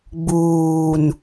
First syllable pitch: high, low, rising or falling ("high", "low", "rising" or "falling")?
low